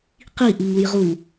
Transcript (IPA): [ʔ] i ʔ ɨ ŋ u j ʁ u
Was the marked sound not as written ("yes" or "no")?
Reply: yes